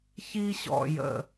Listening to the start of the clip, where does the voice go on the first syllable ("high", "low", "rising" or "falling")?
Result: high